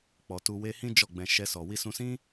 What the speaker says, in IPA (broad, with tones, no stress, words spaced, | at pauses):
k͡pɔ˨tu˧ we˦ hĩ˦ d͡ʒɔ˦˨ɡ͡bɛ̃˧ ʃɛ˧sɔ˨ wi˧sũ˧sĩ˦